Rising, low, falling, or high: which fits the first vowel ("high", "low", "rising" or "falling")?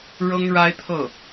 high